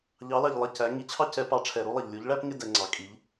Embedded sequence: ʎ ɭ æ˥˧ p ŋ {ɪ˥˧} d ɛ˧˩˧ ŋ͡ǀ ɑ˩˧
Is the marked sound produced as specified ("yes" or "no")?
yes